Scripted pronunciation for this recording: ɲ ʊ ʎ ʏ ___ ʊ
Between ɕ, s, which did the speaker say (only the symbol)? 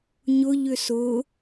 s